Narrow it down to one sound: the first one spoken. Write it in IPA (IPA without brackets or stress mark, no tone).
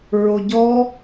ɹ